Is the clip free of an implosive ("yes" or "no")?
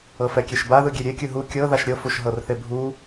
yes